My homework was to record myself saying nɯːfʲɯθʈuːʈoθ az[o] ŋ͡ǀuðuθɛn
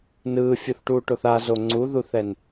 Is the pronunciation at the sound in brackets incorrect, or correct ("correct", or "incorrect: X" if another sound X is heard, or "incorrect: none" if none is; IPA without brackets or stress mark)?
correct